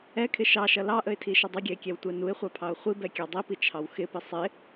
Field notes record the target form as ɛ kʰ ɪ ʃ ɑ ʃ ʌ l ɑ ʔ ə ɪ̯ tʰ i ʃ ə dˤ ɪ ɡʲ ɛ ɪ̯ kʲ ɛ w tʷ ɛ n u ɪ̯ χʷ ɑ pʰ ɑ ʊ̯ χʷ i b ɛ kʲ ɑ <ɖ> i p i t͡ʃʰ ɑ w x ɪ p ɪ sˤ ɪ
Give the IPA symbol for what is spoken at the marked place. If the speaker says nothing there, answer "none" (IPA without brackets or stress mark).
dˤ